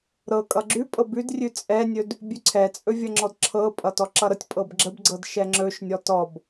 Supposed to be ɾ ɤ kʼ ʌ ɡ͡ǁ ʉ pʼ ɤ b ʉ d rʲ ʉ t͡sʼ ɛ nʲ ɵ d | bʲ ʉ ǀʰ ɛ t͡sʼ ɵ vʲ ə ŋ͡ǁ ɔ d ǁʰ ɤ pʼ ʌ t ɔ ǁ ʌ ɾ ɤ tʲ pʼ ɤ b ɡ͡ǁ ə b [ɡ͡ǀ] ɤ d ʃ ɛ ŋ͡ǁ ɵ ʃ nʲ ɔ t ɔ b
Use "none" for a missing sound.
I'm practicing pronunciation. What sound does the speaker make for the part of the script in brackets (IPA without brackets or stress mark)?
ɡ͡ǀ